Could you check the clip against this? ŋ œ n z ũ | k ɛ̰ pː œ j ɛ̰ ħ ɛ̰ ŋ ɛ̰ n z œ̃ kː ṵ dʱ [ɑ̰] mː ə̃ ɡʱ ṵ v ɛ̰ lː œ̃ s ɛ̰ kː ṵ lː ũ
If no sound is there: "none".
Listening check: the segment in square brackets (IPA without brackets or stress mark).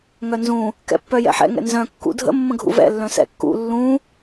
ə̰